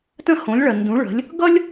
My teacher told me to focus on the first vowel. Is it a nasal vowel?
yes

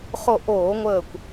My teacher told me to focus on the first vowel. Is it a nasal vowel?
no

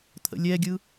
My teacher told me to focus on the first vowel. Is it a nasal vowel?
no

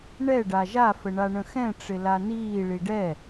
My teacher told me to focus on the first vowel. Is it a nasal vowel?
no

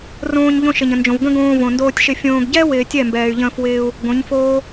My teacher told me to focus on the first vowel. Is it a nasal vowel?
yes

